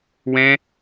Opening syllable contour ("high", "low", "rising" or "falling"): high